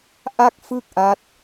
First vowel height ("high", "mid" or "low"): low